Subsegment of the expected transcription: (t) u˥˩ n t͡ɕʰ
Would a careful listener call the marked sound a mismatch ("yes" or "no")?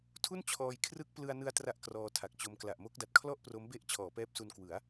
yes